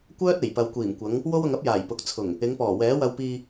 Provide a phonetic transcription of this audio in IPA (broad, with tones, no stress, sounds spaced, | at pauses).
kʷ œː˥ t̚ e˨˩ j p ɐ˨ w kʷ iː˨˩ m kʷ ɐ˨˧ ŋ | w o˥ w ʊ˧ ŋ ɐ˥ p̚ j aː˨˩ j p ʊ˨ k̚ t͡sʰ ʊ˨˩ ŋ | ɪ˨˧ ŋ p ɔː˨˩ w ɛː˨˥ w ɐ˧ w p iː˧